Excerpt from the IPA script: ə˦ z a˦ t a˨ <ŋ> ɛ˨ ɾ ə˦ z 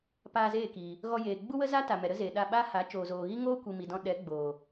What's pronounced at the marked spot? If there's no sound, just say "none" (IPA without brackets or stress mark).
m